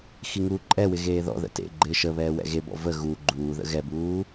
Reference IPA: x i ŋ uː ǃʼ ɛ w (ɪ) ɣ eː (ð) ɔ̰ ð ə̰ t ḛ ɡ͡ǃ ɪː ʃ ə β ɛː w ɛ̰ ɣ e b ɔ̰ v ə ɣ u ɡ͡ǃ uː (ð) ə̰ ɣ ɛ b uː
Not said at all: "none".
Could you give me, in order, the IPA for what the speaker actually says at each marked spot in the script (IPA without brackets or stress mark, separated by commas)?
ɪ, ð, ð